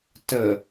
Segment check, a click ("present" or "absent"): absent